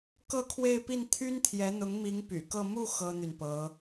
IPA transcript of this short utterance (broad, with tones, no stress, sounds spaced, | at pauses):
k ɤ˥˧ kʰ w e˥˧ ɪ̯ p i˥˩ n t̪ʰ y˥ n t̪ʰ j ɛ˧˥ n̪ ʊ˧˥ ŋ m i˧˥ ŋ p y̰˨˩ k ɤ˥˧ m u˥˩ x ɤ˥ n̪ y˨ n p ɤ˧˥